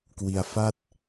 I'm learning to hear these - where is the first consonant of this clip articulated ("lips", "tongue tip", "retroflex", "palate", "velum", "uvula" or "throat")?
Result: velum